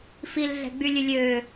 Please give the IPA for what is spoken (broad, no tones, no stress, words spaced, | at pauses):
filɮɛ̤ ɡ͡bylʲʉlʲøː